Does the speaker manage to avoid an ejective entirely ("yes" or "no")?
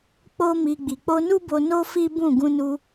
yes